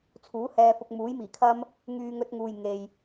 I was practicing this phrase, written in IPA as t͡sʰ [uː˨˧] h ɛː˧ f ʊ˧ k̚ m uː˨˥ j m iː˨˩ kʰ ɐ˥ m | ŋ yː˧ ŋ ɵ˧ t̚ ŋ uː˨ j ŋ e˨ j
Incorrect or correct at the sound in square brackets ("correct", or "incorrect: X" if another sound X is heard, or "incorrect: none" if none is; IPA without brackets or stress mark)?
incorrect: uː˨˥